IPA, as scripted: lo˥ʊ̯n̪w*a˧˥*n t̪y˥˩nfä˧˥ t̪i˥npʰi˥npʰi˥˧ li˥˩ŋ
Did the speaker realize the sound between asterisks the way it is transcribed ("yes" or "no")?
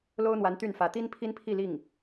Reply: yes